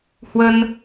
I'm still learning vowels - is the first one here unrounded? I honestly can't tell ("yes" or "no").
yes